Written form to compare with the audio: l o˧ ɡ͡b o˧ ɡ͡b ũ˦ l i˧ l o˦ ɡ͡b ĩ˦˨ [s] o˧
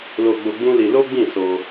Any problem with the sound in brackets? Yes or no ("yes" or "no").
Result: no